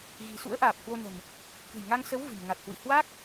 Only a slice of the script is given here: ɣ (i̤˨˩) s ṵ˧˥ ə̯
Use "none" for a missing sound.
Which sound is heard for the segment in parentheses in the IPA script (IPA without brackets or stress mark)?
i̤˨˩